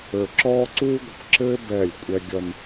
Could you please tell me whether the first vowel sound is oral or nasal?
oral